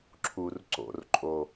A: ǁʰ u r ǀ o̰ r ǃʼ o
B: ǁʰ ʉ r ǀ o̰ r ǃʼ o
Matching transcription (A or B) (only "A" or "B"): A